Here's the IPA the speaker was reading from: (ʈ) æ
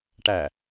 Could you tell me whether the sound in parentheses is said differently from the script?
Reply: no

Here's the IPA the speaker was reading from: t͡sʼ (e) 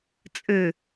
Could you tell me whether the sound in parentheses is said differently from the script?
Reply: yes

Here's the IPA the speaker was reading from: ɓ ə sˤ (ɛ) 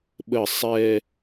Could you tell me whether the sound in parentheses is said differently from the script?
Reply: no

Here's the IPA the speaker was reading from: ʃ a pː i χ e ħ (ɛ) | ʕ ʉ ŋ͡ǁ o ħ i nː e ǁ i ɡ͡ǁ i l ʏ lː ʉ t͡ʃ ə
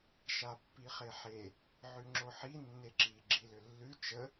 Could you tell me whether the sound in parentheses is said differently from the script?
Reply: yes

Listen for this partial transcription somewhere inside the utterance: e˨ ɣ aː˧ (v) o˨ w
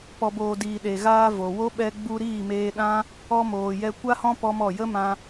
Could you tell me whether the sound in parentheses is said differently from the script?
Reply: no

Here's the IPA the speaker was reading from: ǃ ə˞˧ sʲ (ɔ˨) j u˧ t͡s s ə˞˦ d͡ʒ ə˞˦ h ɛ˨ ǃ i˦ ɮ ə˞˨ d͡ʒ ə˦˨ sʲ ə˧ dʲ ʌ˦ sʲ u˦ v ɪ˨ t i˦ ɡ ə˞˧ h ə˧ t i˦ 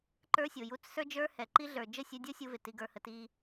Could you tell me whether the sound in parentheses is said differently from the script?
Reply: yes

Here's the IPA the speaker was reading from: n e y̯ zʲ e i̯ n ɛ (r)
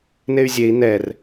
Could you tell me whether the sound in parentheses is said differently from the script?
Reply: no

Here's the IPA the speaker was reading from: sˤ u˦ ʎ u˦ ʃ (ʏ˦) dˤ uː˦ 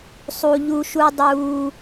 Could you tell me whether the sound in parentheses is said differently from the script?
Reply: yes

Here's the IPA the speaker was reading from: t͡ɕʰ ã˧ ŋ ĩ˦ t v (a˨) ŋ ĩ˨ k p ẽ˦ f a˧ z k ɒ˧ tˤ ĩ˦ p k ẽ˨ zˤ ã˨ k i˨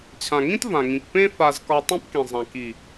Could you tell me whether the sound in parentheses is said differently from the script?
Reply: yes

